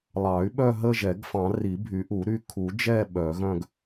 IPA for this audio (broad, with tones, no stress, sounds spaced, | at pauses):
lˠ ɑ˨˩˦ y̯ ɓ œ˦˨ ɦ ə˦˨ ʒ ɛ˨˩˦ ɡ f ɑ̃˨˩˦ r i˨˩˦ bʱ y˨˩˦ ʔ u˨˩˦ ɾ y˦˨ kʰ u˨˩˦ d͡ʒ ɛ˦˨ ɓ œ˨˩˦ ɣ œ̃˦˨ ɡ